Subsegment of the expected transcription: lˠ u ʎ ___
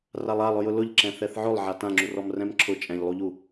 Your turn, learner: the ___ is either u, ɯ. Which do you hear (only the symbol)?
u